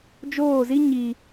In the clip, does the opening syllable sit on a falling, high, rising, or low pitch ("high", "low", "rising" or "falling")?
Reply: falling